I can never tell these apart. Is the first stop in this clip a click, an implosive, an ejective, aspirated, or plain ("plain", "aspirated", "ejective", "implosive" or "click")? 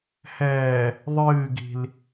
plain